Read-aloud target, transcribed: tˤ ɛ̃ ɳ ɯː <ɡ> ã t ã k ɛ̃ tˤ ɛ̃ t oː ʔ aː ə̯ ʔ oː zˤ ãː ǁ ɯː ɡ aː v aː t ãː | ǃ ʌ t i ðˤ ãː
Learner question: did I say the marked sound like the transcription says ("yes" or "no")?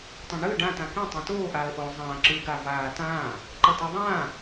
no